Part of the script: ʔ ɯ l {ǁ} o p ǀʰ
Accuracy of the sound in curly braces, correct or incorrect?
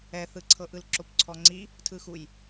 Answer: correct